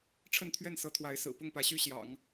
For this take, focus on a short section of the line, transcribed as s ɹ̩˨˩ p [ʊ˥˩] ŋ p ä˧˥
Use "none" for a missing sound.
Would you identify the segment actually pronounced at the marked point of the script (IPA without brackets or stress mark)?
ʊ˥˩